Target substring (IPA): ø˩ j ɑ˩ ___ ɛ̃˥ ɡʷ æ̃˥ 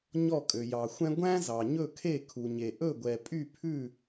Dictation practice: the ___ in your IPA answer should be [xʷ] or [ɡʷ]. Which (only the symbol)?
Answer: xʷ